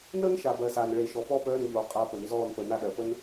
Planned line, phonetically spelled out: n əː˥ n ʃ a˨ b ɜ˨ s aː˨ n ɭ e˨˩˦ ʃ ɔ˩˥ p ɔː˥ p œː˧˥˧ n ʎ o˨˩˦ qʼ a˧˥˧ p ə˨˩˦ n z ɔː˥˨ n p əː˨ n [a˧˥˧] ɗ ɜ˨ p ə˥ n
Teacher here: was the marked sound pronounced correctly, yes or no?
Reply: no